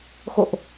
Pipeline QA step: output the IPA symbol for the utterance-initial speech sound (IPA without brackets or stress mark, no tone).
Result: x